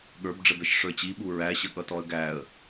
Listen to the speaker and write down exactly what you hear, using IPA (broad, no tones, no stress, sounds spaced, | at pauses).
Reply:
ɠ ə˞ b ɖ͡ʐ ə b ɛ ʃ ʂ ə˞ t͡ɕ i ɓ u ɹ æ ɕ ə ɠ ʌ t ɔ ə̯ ɡ æ ə̯